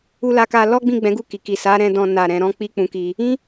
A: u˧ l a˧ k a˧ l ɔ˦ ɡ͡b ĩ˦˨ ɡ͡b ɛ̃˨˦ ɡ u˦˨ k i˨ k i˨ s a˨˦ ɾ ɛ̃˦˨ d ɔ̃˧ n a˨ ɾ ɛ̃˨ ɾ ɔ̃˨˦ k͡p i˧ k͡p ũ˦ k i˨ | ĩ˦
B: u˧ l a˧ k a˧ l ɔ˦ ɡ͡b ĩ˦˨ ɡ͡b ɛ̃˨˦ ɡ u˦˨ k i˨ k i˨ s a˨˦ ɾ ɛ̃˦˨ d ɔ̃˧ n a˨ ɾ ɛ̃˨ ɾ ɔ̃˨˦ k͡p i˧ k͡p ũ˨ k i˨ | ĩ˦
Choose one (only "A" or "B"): B